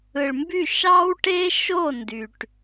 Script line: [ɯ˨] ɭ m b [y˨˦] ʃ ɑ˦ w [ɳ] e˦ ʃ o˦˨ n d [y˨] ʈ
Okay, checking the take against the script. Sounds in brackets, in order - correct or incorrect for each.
correct, incorrect: y˦˨, incorrect: ʈ, correct

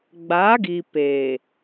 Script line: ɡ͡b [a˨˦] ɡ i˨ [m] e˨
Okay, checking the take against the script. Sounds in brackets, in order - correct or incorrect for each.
correct, incorrect: p

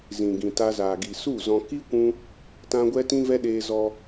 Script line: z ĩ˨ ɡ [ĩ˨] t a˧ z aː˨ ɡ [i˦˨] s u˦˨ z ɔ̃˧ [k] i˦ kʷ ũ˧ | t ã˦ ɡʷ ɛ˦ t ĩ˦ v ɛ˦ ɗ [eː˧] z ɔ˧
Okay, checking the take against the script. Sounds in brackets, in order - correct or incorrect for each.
correct, incorrect: i˨, correct, correct

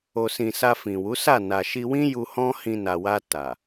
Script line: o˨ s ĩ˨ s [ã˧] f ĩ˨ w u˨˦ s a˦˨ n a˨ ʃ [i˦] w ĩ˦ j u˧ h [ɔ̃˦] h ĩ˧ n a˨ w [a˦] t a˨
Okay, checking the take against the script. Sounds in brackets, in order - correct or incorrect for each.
incorrect: a˧, incorrect: i˧, correct, incorrect: a˧

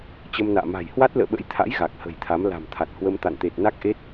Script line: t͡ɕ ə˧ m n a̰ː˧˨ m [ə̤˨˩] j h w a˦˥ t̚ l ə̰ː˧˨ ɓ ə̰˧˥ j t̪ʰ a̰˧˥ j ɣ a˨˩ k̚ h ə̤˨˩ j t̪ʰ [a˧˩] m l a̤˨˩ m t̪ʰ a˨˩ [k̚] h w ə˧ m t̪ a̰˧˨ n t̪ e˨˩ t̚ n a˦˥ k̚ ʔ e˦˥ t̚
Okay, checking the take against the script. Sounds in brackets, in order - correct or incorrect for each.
incorrect: a̤˨˩, incorrect: a˨˦, incorrect: t̚

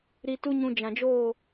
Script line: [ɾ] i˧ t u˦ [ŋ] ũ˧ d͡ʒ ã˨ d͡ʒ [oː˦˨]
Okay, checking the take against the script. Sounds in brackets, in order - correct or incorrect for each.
correct, incorrect: ɲ, correct

